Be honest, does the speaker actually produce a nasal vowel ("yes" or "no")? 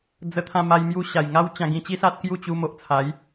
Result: yes